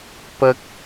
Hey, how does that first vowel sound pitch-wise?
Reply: high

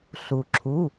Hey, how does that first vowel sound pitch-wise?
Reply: low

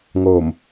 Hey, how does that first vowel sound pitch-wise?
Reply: low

